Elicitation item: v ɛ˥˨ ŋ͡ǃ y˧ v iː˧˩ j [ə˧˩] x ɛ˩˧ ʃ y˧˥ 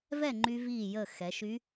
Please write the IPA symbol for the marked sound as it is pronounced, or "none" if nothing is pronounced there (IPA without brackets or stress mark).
ə˧˩